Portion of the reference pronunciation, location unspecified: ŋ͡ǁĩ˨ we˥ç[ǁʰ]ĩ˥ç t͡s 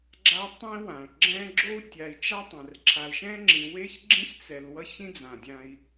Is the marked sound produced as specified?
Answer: no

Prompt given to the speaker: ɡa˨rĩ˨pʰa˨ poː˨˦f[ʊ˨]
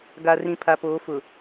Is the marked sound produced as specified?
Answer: yes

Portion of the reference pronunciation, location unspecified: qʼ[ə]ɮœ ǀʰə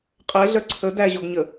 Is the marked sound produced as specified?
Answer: no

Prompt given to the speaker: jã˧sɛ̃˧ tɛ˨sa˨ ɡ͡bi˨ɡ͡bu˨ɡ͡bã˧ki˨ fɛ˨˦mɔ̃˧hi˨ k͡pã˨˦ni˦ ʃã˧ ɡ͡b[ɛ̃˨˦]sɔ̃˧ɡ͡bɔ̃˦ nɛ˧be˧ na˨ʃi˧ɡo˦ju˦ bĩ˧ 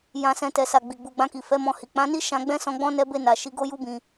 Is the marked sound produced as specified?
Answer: no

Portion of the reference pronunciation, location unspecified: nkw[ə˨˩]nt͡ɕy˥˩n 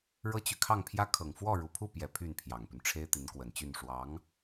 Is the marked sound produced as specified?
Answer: yes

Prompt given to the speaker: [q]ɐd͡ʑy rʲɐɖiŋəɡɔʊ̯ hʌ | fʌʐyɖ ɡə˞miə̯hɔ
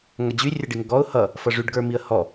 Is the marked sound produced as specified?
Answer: no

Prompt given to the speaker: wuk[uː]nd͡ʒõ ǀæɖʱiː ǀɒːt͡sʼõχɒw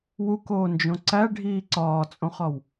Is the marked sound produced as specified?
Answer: no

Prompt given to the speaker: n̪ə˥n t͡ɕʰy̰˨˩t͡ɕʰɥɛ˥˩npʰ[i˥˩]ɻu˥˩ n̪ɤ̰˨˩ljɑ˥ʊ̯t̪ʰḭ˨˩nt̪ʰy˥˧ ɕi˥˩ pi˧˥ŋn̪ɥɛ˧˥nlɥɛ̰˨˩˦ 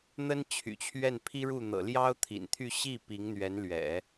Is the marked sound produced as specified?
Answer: no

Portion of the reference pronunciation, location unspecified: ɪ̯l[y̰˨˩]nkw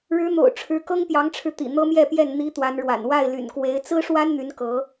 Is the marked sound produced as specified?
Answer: yes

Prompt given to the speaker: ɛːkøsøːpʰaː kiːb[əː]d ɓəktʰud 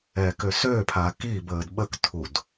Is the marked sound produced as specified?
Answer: yes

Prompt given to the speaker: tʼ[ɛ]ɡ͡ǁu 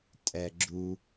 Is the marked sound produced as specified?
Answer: yes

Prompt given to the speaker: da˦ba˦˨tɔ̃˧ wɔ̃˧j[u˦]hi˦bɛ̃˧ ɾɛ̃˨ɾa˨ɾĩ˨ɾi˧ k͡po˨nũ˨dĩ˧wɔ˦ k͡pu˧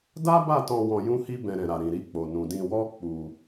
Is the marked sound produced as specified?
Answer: no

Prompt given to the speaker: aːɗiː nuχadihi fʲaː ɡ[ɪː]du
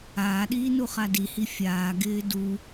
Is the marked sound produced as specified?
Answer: yes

